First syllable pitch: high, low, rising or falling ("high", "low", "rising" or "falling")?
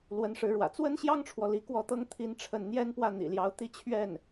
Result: rising